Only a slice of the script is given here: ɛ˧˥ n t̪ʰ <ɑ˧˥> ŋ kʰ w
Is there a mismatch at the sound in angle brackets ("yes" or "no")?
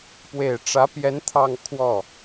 yes